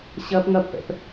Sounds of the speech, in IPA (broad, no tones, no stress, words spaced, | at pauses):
ɕɐp ŋɐpːɛ̰p